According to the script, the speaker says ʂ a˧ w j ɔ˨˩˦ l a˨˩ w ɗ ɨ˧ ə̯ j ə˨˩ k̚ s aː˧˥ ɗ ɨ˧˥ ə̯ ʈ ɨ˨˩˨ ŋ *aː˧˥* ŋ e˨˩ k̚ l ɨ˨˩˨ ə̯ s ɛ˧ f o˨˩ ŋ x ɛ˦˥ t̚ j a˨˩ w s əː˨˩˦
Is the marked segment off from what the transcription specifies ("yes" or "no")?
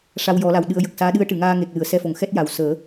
yes